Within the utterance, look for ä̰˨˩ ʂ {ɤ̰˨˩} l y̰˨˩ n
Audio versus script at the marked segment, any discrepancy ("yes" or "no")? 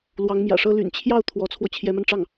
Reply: yes